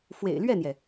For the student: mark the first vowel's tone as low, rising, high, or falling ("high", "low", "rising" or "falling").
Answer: low